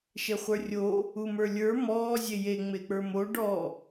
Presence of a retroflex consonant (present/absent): present